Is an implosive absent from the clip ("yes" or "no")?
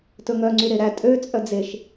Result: yes